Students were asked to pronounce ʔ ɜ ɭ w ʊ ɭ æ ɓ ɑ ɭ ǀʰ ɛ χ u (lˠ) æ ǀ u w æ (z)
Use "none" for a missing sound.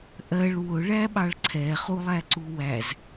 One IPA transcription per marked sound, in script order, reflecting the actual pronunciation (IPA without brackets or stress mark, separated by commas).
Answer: lˠ, z